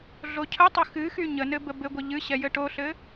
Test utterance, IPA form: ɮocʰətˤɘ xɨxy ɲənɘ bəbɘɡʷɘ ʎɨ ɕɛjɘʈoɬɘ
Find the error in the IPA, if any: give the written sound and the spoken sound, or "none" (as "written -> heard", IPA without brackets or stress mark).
none